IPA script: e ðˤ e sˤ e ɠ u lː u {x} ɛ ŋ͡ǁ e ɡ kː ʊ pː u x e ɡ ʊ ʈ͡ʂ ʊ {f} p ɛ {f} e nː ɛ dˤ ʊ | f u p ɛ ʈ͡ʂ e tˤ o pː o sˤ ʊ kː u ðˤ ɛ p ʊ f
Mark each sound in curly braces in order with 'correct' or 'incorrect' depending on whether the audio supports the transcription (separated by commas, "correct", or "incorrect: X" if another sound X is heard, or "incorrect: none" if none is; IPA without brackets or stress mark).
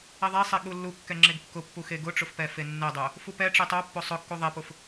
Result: incorrect: kː, correct, correct